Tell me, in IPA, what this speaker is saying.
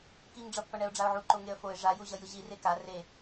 k i ŋ ɖ͡ʐ ʌ pː ʌ ɳ ɛ ʊ̯ ɖ͡ʐ a ʊ̯ ʕ u ǃ o ŋ e ə̯ f o ɪ̯ ʐ a j u ʑ ʌ j ɯ ʑ i r e k a r e

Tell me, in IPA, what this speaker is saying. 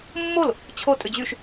mː o l | t͡ɕʰ o tʼ ʏ d͡ʑ y ʃ

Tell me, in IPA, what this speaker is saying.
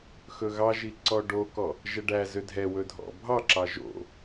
x ɵ ɣ ɑ ʒ i ǀ ɔ ɖ o k ɔ | ʒ ɛ ɖ æ z ø dʱ ɛ w ɵ dʱ ɔ̰ bʱ ɑ ǁ ɑ ʒ o̰

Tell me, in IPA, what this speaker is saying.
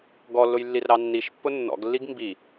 ɡ ɔ lː ʊ j lː i r ɾ ɑ nː i ʃ pː ʊ nː ɔ̰ ɡ lː i ɡ m b i

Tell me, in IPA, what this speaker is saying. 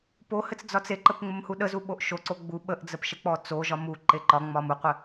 p o h ɘ t͡s d͡z ɒ t͡s e ǃ ə p ŋ͡m ə m h u ɗ ə z u ɓ o ʔ ʃ o ǀ o ɡ͡b u ɓ ə ʔ d͡z ə p ʃ ə k͡p ɔ t͡s o ʒ ɒ m u ǃ e ǃ ɒ ŋ͡m ɒ m u qʷ ɘ

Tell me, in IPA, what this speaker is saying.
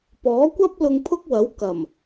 p ɔː˨˥ kʷ ɐ˥ p̚ l ʊ˧ ŋ pʰ ʊ˥ k̚ w ɐ˨˥ w k ɐ˨˩ m

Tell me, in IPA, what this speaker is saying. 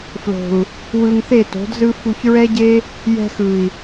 f l o̤˨ u̯ | w ɯ˧ ŋ θ e˦˨ t o̤˨˦ d z ɯ˦ f u˧ ç ɹ ɛ˦ ɟ e˦ | j ɛ̤˧ x ɯ˨ i̯

